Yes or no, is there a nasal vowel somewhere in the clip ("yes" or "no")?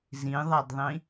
yes